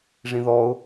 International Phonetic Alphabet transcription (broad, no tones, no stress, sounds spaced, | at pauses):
ʐ ĩ ð ɔ ʊ̯